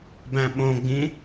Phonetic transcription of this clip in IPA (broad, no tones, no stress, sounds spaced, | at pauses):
b æ̃ ɓ õ ɡ͡b ĩ